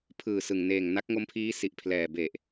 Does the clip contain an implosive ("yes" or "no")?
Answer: no